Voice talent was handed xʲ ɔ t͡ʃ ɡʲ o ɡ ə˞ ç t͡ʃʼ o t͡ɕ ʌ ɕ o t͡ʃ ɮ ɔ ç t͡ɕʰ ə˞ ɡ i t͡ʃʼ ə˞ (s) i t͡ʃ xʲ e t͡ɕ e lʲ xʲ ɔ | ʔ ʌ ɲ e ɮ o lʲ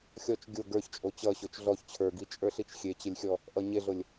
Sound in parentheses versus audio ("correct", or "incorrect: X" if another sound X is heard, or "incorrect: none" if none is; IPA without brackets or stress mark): incorrect: ɬ